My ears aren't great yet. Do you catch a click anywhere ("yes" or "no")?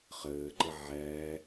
yes